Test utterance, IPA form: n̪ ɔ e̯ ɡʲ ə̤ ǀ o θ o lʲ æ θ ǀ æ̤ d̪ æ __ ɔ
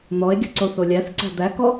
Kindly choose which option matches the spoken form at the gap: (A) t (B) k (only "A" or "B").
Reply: B